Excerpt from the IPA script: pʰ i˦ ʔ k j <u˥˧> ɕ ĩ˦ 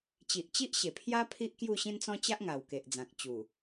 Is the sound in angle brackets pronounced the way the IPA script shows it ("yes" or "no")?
yes